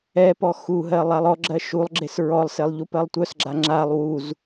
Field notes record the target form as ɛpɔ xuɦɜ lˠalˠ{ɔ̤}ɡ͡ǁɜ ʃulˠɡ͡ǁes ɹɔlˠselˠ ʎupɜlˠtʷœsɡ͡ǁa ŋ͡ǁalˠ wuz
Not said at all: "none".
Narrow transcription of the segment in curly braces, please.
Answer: ɔ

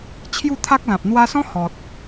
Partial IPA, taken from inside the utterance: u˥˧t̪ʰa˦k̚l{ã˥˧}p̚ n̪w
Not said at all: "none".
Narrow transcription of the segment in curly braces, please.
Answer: ã˨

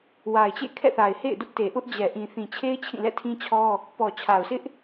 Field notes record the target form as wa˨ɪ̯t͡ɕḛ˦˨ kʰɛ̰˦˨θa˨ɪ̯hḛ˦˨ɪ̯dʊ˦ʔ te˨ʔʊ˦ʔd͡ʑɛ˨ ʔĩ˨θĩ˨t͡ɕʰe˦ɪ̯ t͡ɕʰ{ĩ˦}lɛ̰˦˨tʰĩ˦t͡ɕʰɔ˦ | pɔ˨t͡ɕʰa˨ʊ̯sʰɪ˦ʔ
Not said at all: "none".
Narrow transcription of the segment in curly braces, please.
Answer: ĩ˦˨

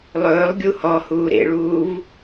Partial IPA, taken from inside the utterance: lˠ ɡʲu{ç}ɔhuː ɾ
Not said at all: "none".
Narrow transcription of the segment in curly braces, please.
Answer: h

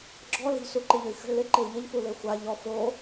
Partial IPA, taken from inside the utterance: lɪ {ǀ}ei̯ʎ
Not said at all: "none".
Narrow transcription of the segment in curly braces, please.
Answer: ǃ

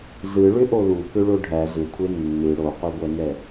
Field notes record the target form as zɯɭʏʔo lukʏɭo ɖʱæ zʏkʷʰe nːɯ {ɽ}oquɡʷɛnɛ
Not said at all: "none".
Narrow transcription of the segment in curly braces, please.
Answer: ɽ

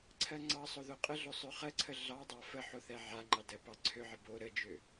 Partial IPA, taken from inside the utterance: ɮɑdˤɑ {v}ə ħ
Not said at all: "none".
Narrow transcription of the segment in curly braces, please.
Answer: f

